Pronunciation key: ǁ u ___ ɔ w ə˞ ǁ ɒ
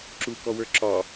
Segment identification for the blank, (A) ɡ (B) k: B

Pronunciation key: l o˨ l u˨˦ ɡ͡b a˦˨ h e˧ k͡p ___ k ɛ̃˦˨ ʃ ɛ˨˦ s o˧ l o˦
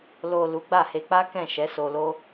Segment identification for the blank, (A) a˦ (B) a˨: A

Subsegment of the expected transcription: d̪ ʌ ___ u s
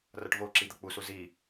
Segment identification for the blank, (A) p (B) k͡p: B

